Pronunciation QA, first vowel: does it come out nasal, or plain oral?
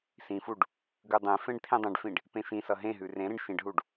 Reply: nasal